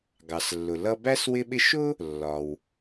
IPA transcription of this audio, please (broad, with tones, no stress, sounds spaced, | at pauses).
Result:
ɡ ɑ˩ s lː ʊ˩ l ʌ˧ b æ˥ s w ɪ˧ ɓ ɪ˧ ʃ ʊ˥ | lː ɒ˩ w